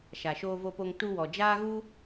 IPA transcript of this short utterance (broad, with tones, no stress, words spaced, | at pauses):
ʃa˨ ʃoː˧vo˧po˧ŋ tu˧wɔ˨ d͡ʒaː˦ɣu˦